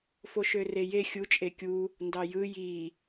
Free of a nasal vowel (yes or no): yes